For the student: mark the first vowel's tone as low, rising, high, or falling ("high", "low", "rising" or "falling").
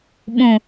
low